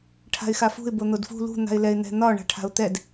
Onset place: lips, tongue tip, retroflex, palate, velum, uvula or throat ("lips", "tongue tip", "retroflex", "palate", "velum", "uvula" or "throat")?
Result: retroflex